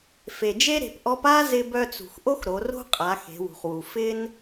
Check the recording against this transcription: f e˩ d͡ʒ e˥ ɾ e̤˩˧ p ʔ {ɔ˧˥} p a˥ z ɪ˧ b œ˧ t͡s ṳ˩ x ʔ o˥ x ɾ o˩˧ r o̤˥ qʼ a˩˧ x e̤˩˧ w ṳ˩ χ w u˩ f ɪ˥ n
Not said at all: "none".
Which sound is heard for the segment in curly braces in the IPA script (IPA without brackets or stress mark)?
ɔ˧˥